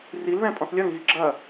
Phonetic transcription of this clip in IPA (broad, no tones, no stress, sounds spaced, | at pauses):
r i l ð ɛ̃ pʼ ɔ̃ θ lʲ ɐ ŋ ɣ i ɡ͡ǁ ɐ